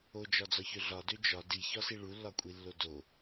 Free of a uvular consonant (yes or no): yes